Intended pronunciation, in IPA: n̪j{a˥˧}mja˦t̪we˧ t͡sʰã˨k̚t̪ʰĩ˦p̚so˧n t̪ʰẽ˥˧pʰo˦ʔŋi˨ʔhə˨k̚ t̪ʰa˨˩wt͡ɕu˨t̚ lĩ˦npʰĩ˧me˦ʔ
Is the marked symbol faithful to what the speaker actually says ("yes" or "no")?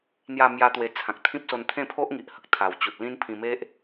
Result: yes